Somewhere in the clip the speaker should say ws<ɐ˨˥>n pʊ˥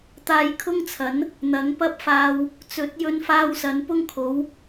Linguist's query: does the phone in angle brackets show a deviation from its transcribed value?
no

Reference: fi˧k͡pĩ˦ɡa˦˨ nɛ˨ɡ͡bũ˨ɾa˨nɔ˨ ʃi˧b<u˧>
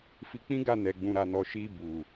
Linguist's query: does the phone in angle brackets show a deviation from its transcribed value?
yes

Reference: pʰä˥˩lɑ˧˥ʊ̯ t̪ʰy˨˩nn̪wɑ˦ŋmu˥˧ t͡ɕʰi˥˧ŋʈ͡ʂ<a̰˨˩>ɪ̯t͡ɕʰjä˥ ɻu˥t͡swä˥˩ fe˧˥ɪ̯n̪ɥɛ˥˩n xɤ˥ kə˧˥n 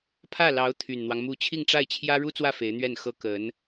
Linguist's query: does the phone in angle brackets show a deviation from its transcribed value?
yes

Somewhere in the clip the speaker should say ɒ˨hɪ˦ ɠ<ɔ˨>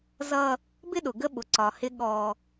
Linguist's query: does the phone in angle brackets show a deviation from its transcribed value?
yes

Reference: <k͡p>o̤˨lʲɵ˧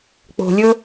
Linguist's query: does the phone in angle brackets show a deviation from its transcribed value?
no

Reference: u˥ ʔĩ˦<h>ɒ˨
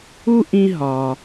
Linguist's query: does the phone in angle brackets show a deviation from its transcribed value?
yes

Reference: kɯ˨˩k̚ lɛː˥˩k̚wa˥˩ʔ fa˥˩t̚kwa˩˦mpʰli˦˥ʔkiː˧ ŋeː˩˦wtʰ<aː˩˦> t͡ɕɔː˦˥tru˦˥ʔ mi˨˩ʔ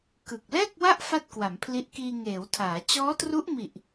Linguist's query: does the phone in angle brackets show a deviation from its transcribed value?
no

